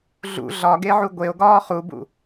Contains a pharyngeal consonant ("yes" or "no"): yes